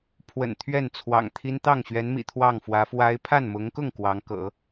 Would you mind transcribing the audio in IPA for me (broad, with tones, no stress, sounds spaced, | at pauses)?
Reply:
pʰ w ə̰˨˩ n t̪ʰ ɥ ɛ˥˩ n t͡sʰ w ɑ̰˨˩ ŋ t̪ʰ i˥ n t̪ ɑ˥˩ ŋ ɕ ɥ ɛ˧˥ n m ḭ˨˩ t̪ʰ w ɑ˥˩ ŋ f w ä˧˥ f w a˥ ɪ̯ pʰ a˥˩ n m ʊ˧˥ ŋ k ʊ˥˩ ŋ k w ɑ˧˥ ŋ k ɤ̰˨˩˦